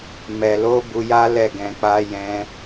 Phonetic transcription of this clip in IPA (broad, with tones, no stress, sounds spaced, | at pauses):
m ɛ˨ l o˨˦ b u˧ j a˦ l ɛ˦˨ ɡ ɛ̃˧ k͡p a˦ j ɛ̃˦